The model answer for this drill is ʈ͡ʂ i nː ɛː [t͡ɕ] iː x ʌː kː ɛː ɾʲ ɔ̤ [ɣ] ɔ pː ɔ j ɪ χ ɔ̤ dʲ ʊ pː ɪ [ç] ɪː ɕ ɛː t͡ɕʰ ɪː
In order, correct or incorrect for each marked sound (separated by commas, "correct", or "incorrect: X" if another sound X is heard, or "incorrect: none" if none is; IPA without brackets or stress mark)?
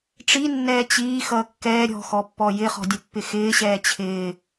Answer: correct, incorrect: x, incorrect: x